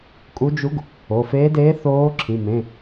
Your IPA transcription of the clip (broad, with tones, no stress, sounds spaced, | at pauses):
kʼ u˧˥ d͡ʒ u˧˥ ɡ | o˩˧˩ f eː˧˥ d eː˧˥ θ oː˧˥ ǁʰ ĩ˩˧˩ m ẽ˩˧˩